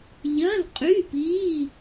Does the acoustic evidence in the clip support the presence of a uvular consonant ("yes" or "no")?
yes